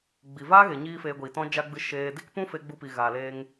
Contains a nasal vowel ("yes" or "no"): yes